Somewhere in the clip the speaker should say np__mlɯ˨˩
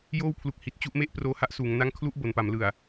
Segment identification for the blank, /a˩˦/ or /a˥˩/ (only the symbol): a˩˦